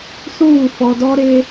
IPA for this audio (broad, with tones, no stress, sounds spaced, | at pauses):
s uː˦˨ f ɔ˨ d ɔ˦ ɾ e˦